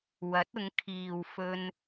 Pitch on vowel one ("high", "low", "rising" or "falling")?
rising